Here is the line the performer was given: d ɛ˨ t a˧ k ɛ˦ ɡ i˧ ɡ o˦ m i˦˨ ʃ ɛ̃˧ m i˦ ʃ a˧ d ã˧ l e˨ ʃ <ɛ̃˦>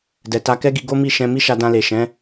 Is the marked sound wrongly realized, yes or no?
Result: yes